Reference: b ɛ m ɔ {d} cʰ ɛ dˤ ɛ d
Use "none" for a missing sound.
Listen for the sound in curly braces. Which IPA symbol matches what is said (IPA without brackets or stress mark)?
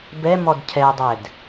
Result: d